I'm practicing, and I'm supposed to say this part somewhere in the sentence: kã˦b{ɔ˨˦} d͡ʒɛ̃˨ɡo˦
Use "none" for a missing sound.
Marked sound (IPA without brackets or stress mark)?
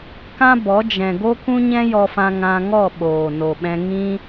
ɔ˨˦